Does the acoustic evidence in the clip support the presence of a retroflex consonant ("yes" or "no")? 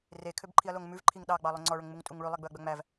yes